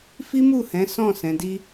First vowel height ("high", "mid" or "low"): high